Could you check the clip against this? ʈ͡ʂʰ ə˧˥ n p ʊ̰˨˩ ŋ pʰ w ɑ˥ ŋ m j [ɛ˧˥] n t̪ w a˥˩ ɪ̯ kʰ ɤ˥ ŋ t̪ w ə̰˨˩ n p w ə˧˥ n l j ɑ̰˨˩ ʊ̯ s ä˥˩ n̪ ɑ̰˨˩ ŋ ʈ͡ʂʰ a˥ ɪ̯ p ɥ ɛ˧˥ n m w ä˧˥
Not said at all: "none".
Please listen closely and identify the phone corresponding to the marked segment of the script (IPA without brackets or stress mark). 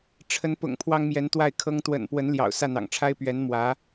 ɛ˧˥